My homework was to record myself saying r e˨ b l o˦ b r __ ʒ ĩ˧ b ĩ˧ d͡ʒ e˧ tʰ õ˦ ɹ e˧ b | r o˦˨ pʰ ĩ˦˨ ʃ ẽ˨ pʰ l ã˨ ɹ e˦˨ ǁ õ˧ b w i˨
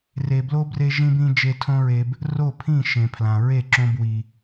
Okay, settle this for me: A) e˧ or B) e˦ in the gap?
A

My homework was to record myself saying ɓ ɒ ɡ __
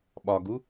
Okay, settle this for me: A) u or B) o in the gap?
A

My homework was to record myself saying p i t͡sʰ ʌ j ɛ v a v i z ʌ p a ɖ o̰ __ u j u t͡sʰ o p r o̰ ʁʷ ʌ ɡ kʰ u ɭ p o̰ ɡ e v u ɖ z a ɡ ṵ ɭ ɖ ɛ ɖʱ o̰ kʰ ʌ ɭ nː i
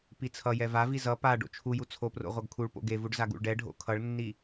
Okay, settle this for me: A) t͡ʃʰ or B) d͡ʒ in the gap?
A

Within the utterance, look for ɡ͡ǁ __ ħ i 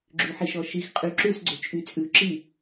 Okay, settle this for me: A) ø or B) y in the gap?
B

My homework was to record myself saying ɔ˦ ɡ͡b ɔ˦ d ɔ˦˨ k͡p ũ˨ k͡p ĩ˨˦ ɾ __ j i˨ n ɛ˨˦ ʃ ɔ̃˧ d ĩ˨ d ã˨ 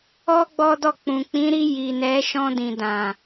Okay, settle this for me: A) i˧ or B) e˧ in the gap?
A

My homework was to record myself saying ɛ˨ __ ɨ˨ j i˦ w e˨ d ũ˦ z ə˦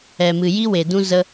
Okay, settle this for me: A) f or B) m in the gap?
B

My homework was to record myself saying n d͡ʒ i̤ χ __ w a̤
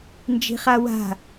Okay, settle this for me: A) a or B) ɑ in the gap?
A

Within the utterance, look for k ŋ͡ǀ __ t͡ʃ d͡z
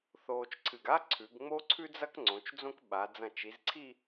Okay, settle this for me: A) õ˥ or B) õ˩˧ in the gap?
B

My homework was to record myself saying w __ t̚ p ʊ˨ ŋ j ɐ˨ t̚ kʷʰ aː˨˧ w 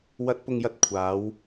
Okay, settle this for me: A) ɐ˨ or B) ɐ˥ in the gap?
A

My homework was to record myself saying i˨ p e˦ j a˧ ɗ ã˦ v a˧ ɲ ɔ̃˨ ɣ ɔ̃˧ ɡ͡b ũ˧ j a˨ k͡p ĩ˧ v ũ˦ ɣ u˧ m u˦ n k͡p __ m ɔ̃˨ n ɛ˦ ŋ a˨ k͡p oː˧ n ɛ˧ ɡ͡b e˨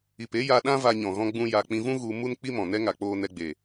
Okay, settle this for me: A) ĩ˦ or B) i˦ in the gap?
B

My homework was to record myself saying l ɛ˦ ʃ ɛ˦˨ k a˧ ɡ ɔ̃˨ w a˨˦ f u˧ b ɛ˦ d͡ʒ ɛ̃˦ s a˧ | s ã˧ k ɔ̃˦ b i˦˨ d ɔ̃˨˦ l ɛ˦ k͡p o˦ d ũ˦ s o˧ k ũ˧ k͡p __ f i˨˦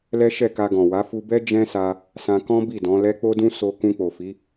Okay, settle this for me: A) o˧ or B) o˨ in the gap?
B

